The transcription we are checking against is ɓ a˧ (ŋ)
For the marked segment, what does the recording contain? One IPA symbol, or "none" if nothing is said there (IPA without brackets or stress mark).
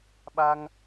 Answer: ŋ